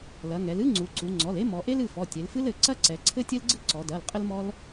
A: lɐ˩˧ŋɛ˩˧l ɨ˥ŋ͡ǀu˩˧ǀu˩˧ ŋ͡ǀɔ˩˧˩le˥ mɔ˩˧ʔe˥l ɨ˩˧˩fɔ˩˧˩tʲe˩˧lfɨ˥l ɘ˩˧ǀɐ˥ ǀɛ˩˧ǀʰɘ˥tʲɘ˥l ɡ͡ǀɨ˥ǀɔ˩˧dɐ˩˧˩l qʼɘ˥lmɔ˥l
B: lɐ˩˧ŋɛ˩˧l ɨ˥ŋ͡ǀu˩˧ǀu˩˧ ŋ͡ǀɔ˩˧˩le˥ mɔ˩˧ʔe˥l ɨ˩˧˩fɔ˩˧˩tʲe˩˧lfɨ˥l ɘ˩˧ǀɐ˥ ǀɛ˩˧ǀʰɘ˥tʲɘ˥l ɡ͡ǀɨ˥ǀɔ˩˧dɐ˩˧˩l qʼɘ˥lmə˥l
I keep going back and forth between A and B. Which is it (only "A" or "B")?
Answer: A